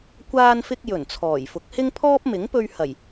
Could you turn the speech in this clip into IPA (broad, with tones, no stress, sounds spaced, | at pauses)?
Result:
kʷ aː˧ n f ɪ˧ k̚ j ɵ˨˩ n t͡sʰ ɔː˨˩ j f ʊ˨˥ k̚ h ɪ˥ ŋ pʰ ɔː˥ p̚ m ɪ˨˥ ŋ p ɵ˧ ɥ h ɐ˨˩ j